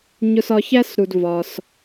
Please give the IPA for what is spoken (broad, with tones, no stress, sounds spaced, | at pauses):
ɲ ʊ˧ s ɒ˧ ç æ˥ s ɾ u˩ d v ɒ˩ s